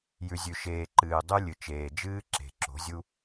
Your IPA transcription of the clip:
j ʉ˨ zʲ ʉ˨ ʃ eː˨ ǃ ɨː˨ dˤ ʉ˦ lʲ ɨ˨ t͡ʃ eː˨ d͡ʒ ɨː˦ ǁ e̤˨ ǁ o̤˨˦ zʲ u˦

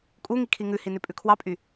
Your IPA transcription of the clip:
kʼ u ŋ i kʰ i ŋ ʉ h i n ʉ pʼ ʉ kʰ w ɑ pʼ y

